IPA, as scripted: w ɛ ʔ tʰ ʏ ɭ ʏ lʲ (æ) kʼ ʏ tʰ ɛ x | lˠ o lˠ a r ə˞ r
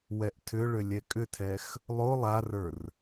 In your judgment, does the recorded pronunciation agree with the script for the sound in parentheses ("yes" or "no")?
no